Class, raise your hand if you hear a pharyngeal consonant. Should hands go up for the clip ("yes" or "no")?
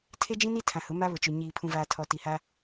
no